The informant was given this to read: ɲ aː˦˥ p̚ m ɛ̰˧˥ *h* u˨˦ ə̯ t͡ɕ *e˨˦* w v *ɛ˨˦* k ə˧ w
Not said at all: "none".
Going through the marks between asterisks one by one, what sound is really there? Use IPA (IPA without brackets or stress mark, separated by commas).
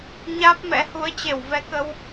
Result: h, e˧˩, ɛ˨˦